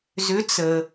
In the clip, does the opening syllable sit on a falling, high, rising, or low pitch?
rising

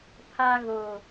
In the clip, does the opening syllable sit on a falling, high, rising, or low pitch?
high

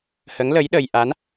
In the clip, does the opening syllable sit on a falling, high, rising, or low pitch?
rising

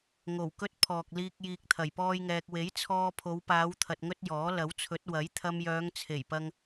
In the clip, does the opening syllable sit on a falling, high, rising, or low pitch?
low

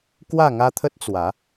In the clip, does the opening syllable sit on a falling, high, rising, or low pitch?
falling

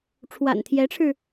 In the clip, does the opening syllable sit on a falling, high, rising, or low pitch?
low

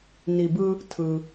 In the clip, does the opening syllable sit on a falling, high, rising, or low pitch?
low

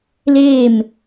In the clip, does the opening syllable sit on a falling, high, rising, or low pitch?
falling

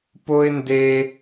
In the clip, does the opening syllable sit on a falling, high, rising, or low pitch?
high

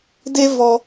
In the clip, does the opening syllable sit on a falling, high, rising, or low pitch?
high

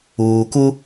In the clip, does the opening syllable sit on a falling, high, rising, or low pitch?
low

